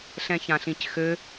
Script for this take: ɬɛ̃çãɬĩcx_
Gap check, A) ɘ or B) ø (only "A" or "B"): B